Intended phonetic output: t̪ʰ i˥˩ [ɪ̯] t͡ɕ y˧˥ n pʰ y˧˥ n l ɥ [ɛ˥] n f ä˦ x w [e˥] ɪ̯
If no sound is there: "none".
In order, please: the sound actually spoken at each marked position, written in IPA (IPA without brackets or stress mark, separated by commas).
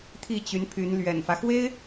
none, ɛ̰˨˩, e˥